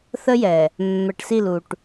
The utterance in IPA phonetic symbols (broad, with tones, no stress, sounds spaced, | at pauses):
θ ə˦ j ɛ˨ | mː ɛ˨ ʈ s i˦˨ l u˨ ʈ